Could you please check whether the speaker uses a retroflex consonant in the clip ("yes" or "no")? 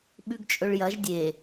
yes